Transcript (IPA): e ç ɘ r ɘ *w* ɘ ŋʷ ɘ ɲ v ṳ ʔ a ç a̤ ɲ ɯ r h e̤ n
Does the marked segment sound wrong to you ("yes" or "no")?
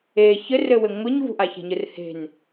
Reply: no